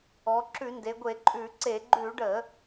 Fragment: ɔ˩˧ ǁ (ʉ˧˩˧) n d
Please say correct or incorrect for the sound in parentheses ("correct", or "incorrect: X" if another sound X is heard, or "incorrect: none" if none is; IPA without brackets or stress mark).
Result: correct